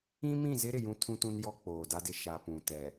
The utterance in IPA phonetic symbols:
ĩ˦mĩ˦˨zɪ˦ɾɪ˨ jũ˦tʰũ˦tũ˦n jɔ˦k͡poː˨da˦dɪ˦ ʃa˨ pũ˨tɛ˨

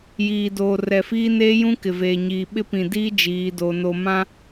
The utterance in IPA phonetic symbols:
jiː˨doː˨ rɛ˨fiː˦neː˦jũ˦ kɪ˨veː˨ɲiː˨ ɓɪ˦pĩ˨diː˦ d͡ʒiː˨˦do˨ no˨mã˦

